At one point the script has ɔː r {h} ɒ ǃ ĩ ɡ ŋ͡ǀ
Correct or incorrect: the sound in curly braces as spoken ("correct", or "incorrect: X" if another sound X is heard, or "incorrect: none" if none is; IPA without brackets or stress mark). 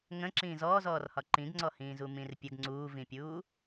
correct